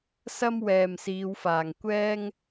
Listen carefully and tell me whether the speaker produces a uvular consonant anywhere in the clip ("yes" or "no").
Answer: no